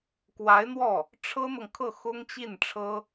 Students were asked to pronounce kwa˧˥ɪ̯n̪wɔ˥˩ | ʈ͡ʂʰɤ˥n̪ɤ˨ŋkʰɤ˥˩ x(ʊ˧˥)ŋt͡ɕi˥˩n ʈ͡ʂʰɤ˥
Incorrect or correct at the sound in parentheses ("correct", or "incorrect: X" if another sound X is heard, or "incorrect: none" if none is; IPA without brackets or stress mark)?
incorrect: ʊ˥